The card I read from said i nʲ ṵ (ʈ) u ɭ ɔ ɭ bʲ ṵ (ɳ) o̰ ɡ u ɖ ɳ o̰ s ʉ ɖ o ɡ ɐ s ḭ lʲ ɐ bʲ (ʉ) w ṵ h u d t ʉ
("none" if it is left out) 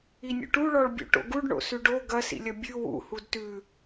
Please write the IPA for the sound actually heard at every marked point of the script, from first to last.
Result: ʈ, ʈ, ʉ

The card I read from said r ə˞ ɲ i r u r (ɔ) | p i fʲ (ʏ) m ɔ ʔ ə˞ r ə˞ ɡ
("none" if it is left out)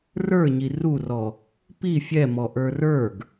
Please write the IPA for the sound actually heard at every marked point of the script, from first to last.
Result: ɔ, ɛ

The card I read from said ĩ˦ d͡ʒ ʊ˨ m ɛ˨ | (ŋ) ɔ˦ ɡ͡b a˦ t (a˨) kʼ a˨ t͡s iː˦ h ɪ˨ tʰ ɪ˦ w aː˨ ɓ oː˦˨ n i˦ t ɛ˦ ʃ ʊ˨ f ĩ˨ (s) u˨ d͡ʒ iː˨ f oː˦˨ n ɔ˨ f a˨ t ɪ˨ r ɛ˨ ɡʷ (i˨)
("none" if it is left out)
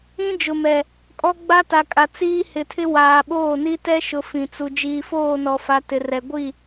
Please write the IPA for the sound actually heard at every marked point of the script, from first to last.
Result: kʼ, a˨, t͡s, i˦˨

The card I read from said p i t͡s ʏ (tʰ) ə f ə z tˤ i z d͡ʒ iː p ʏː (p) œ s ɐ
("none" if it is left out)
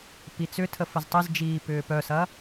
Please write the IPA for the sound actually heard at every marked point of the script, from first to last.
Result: tʰ, p

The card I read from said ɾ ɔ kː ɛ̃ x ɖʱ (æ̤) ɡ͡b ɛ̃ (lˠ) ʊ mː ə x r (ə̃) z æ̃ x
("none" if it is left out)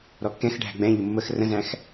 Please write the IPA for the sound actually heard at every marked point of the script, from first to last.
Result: æ̤, ʎ, ə̃

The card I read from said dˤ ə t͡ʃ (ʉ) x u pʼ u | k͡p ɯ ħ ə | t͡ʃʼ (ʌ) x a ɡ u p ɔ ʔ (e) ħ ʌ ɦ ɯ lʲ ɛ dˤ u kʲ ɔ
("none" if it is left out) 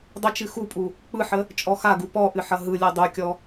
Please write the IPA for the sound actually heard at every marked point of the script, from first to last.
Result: ɨ, ɔ, ɨ

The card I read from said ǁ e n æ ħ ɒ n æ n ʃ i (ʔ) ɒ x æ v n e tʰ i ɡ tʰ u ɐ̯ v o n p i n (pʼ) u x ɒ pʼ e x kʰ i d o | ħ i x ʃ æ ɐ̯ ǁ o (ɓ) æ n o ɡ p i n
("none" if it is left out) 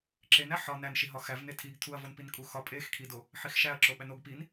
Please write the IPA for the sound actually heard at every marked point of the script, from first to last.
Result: ɦ, kʼ, ɓ

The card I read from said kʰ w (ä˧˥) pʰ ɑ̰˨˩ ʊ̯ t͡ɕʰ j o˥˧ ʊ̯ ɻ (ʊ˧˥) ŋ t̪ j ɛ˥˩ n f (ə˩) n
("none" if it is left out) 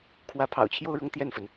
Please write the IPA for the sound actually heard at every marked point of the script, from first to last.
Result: ä˧˥, ʊ˥˧, ə˩

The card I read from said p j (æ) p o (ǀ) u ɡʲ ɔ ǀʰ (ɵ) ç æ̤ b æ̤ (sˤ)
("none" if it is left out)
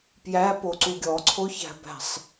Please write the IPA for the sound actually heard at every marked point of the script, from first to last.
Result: æ, ǀ, o, sˤ

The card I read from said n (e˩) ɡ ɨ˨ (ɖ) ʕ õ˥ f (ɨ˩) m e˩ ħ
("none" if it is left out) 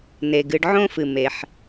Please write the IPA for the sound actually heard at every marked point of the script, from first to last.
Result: e˩, ɖ, ɨ˩

